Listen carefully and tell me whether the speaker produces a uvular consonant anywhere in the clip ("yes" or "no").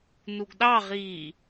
yes